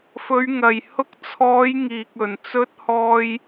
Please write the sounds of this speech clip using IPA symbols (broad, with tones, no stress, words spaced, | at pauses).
fɵ˨˧ɥŋɐ˨˩j hʊ˧k̚t͡sʰɔː˨˧j ŋiː˨k̚ɵ˨˩n t͡sɵ˧t̚hɔː˧j